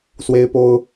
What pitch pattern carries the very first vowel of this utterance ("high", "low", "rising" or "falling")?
high